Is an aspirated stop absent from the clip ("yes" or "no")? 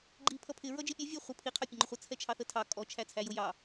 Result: no